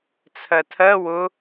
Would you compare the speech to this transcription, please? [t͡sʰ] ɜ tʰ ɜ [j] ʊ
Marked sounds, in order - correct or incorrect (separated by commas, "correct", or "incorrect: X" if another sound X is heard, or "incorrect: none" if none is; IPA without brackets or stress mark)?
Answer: correct, incorrect: w